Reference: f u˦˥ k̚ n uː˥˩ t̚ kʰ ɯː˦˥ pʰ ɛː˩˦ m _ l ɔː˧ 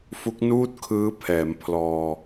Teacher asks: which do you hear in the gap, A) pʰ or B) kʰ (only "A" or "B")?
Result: A